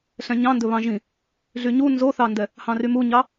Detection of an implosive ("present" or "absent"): absent